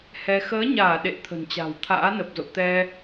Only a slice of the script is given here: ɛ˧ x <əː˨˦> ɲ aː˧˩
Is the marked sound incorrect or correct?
correct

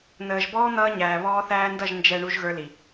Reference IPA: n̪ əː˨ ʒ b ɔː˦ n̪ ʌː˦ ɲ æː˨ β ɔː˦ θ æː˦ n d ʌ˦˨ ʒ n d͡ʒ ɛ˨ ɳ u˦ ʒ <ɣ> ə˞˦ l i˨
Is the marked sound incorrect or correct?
correct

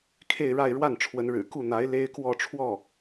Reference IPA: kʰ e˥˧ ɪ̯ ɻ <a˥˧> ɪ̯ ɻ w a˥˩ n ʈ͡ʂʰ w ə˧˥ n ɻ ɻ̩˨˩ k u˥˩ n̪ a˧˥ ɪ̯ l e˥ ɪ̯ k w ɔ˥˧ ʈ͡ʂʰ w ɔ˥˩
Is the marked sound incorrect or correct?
correct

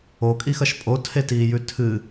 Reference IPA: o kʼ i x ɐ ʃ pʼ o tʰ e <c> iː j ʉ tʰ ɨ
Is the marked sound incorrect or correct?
incorrect: t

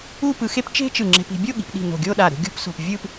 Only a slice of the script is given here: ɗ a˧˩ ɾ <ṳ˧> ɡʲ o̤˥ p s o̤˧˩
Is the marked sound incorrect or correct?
correct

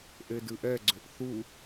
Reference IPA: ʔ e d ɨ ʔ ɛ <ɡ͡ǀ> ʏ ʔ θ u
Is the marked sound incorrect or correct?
correct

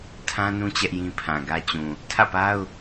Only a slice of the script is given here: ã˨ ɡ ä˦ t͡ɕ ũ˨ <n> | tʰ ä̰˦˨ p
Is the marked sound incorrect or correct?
incorrect: none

